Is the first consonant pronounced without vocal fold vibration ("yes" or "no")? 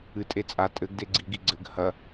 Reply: yes